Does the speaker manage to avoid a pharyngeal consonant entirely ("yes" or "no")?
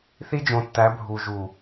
yes